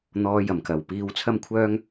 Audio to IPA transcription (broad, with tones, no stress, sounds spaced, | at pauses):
n̪ ɔː˨˧ j ɐ˨˩ m k ɐ˨˩ w p iː˧ w t͡sʰ ɐ˥ m kʷʰ œː˥ ŋ